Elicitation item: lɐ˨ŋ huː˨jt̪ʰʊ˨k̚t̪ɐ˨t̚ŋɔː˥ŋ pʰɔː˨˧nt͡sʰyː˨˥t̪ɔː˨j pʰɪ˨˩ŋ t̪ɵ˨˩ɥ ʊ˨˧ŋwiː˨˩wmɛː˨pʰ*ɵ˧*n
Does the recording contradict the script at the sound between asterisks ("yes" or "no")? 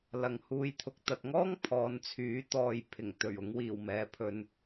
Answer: yes